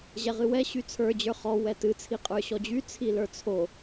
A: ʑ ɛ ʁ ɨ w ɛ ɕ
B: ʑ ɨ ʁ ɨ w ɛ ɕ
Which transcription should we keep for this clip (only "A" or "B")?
A